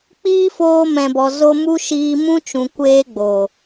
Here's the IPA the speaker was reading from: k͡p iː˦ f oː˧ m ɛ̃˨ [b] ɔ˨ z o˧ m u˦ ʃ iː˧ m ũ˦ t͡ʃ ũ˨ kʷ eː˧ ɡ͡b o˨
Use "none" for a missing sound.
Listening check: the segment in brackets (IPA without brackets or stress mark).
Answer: b